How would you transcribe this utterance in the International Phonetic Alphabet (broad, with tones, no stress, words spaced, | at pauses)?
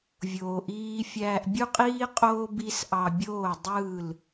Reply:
vʲoː˧ʔiː˦ fʲæː˧ʔbʲu˦qʼiː˦ qʼoː˦ bi˦s ʔɑ˧bʲoː˦˨ dˤɯː˦˨l